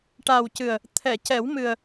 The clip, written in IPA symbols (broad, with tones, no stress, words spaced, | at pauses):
ʈa˨˩wcɨ˨˩ə̯ | t̪ʰɛ˨˩˨cɛ˨˩˦w mɨ˨˩ə̯